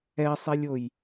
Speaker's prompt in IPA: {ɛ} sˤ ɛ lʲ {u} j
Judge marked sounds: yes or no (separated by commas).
yes, no